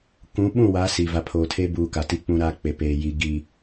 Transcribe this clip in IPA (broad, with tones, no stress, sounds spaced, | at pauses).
k ũ˨˦ ɓ ũ˦˨ w a˨˦ s i˨ v a˨ pʰ oː˨ tʰ e˦ b uː˨ k a˨ t i˦ k͡p ũ˦ ɾ a˦ k͡p e˨ p eː˨ j i˨˦ ɡ i˨